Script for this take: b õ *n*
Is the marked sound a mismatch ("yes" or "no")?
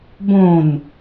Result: no